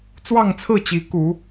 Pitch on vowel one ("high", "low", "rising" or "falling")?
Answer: falling